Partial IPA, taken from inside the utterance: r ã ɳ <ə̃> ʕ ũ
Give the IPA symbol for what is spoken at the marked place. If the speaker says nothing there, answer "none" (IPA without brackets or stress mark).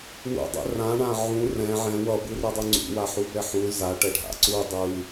ã